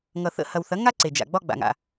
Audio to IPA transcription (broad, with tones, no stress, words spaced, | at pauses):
ŋʌ˩θə̰˧hɐ˩wθɐ˩˥ ŋa˥ǀe˩d͡ʒa̰˩ ɡ͡bɒ˧ ɡ͡ba̰˩ŋa̰˩